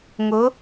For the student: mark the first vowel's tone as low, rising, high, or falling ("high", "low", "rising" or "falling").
rising